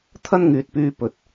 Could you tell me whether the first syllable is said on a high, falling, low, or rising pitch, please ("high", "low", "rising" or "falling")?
high